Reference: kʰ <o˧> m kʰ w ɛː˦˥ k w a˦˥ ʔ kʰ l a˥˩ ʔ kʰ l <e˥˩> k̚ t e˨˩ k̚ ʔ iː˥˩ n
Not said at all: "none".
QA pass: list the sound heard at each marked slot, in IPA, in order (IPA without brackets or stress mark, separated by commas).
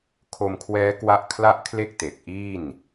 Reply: o˧, e˥˩